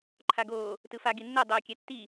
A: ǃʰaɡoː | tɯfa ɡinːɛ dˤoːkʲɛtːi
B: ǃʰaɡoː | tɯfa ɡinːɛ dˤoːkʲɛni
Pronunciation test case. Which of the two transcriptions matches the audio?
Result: A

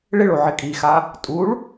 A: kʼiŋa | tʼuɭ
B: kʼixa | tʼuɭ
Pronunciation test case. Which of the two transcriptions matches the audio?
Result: B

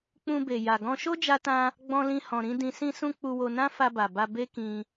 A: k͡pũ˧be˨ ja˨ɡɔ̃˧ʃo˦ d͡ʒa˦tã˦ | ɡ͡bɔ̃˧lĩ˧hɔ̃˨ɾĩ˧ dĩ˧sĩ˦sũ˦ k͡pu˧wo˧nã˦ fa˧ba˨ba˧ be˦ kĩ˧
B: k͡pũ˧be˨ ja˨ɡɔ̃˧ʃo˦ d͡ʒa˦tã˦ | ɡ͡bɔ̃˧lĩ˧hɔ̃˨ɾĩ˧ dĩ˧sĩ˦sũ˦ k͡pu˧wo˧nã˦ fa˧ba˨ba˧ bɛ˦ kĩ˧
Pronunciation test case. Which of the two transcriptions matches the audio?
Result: A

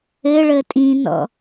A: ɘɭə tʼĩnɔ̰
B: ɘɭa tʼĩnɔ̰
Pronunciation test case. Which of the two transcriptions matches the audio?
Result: A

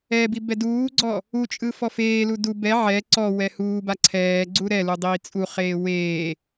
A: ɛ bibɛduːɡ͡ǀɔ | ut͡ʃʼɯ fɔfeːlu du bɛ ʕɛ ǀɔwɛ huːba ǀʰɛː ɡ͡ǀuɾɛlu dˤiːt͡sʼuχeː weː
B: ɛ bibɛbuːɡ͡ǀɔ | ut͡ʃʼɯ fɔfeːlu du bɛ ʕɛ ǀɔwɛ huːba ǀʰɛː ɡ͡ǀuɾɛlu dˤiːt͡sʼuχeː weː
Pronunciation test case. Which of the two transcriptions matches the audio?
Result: A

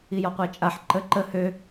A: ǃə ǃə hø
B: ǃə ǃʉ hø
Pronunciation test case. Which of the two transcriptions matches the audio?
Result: A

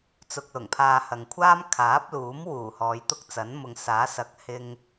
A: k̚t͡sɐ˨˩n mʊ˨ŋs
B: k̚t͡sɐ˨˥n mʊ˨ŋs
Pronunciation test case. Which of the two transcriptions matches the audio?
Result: B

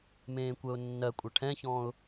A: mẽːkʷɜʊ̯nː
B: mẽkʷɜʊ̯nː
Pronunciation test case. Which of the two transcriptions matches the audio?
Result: A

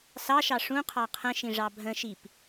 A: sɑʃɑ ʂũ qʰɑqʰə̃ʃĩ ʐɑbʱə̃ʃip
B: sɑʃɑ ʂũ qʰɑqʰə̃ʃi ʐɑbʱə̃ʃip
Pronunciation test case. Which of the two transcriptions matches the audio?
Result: A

